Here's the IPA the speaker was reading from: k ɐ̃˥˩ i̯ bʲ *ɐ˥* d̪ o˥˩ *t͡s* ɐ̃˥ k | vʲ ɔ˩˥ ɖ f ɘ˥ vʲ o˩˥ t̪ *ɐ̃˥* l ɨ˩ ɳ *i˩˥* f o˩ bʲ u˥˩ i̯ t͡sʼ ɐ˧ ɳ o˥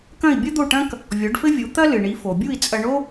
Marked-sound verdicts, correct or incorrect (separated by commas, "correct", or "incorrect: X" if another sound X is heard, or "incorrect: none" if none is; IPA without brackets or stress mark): correct, incorrect: ʈ, incorrect: ɐ˥, correct